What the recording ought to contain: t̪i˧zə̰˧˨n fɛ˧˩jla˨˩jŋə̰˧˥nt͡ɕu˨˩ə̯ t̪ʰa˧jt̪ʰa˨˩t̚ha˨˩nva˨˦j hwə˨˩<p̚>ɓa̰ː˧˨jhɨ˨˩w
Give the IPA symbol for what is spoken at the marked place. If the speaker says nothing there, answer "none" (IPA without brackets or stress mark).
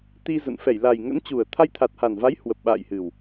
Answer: p̚